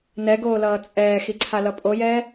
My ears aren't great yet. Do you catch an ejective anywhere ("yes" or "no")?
yes